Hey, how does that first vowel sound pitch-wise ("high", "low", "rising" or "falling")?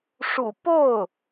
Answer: low